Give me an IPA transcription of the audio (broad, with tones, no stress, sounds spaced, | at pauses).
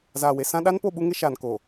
z aː˨ w e˨ s ã˦ ɗ a˦ n p o˦˨ ɓ u˦ ŋ ɪ˦ ʃ aː˨ n k o˨